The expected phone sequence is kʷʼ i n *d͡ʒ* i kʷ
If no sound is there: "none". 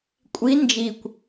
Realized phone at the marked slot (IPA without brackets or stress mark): d͡ʒ